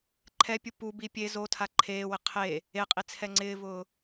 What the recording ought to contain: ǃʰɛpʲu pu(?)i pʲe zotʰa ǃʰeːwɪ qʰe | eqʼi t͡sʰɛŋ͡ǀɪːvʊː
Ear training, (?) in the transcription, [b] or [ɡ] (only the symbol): b